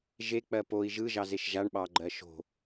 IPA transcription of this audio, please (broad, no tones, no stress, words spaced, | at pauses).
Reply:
ʒek͡pɜ poi̯ ʒɯʒɑzeʃ ʒaɳɓɑɡ͡ǃɜ ʃo̤